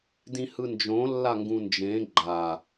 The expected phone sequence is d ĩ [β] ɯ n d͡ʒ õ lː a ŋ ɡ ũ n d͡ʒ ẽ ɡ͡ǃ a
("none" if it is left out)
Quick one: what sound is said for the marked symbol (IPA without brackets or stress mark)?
h